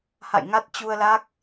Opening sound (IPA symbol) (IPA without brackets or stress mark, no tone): h